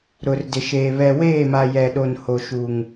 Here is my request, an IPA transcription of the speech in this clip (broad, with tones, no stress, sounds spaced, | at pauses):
ɾ ʊ˨ r d ɪ˨ ʃ eː˨ β ɛ˨ w eː˦˨ m a˨ j ɛ˨ ɗ o˨ n h o˨ ʃ u˨ ŋ